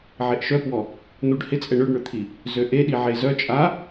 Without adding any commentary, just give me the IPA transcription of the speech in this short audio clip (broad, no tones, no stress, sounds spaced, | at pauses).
ʕ e ʔ ʃ œ p w ɔ | n̪ u ɖ h ɪ t͡sʼ ɛ ɳ ø ɖ ɳ ʏ t̪ʰ i | z ø ʔ e ɗ i ʕ e z œ t͡ʃʼ a